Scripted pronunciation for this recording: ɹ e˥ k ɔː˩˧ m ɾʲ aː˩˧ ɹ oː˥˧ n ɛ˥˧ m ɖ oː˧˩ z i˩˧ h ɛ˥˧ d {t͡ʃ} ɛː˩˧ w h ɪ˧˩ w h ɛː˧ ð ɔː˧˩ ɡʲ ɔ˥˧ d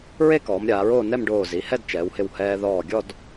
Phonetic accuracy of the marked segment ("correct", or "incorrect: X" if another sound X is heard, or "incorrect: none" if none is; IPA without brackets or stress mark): correct